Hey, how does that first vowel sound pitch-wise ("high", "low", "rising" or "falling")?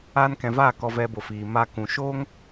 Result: high